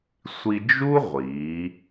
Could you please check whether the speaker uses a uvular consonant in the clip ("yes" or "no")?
yes